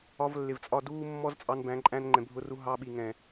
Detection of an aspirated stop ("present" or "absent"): absent